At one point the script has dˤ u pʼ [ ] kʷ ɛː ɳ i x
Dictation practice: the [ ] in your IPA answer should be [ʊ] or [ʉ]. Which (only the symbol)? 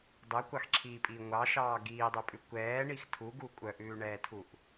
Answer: ʉ